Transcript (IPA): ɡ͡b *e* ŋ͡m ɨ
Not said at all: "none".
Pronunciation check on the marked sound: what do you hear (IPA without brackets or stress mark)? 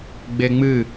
e